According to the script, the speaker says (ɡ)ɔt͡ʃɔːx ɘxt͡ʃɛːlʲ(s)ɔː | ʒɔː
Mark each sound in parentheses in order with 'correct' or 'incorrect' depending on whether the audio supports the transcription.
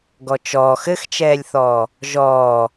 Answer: correct, incorrect: θ

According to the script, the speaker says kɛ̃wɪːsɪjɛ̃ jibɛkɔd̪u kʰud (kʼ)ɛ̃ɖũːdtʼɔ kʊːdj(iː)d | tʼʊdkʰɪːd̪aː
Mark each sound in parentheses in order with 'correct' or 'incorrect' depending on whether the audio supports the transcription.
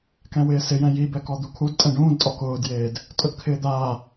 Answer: incorrect: tʼ, incorrect: eː

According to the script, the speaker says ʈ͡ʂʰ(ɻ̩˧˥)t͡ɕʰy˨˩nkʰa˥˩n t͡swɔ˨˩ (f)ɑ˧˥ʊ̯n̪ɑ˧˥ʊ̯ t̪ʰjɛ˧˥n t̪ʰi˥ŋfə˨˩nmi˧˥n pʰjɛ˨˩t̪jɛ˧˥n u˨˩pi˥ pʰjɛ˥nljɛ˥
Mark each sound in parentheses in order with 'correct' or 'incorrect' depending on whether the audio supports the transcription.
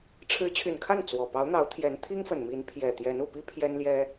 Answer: correct, incorrect: p

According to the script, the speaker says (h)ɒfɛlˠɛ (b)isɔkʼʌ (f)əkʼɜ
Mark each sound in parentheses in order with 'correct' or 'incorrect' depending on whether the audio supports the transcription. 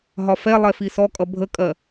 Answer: incorrect: ɦ, incorrect: f, incorrect: bʱ

